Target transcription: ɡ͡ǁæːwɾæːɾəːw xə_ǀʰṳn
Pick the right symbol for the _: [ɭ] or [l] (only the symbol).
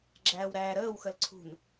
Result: l